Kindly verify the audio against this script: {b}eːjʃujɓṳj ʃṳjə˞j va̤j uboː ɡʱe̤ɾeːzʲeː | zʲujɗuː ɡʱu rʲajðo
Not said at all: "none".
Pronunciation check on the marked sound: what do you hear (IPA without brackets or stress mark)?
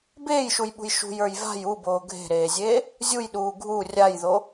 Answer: b